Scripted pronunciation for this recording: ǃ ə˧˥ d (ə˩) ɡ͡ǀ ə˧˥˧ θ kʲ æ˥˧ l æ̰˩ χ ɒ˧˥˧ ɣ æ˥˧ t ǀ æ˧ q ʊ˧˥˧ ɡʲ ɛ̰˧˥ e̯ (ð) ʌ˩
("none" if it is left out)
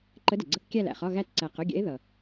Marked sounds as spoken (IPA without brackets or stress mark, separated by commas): ə˩, ð